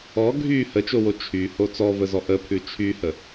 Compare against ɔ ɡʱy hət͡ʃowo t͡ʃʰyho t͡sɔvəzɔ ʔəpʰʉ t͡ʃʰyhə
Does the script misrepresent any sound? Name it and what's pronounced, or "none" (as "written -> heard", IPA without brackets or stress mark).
none